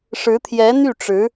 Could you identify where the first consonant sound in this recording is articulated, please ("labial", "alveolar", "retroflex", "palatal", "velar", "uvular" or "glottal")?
retroflex